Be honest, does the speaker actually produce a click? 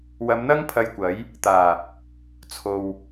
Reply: no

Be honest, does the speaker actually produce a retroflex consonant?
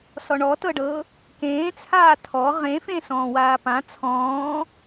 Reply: yes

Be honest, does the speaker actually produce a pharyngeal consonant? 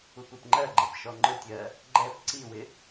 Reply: no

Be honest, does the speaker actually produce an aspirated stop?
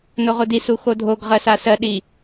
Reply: no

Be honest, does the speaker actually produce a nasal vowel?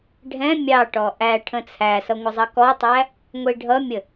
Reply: yes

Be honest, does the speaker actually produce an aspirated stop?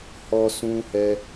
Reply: no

